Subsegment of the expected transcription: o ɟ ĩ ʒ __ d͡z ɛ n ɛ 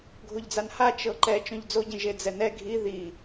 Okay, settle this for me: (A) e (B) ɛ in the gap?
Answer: A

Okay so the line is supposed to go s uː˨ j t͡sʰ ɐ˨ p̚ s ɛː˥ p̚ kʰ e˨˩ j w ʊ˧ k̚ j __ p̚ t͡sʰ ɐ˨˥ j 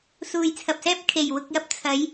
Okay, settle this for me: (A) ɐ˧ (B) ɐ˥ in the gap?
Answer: A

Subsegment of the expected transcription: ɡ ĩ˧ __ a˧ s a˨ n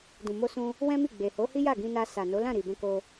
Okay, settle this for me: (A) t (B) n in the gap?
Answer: B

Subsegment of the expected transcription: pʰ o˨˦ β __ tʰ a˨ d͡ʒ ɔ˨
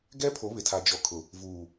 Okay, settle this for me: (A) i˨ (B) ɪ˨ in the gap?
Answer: B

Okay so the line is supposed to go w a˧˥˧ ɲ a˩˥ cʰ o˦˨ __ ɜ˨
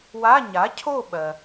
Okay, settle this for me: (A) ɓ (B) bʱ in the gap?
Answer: A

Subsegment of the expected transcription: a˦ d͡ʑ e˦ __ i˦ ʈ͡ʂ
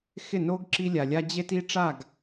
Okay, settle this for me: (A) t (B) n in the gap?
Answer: A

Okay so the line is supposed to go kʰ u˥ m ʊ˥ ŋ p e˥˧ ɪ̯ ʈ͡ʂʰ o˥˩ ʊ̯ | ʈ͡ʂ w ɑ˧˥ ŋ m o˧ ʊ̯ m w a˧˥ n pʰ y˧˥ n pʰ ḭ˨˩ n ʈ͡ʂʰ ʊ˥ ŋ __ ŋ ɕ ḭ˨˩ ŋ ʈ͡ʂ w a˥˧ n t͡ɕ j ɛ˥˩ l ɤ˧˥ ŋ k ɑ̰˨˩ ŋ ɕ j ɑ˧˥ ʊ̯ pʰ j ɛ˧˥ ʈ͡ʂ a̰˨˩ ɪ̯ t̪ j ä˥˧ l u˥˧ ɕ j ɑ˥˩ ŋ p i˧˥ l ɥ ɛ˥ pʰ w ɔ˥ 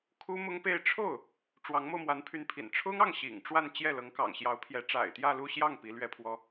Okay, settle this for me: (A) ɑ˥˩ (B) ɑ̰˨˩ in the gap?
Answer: A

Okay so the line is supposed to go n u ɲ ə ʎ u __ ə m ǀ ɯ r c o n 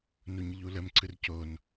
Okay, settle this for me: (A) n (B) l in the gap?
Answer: B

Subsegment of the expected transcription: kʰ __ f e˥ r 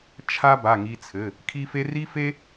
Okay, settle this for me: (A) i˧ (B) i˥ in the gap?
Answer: B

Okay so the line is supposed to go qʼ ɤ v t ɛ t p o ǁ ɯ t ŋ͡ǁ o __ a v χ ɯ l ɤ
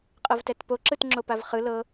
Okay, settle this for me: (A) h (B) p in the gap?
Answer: B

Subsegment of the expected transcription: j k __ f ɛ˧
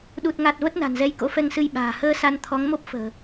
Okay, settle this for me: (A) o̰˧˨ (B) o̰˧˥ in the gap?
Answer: B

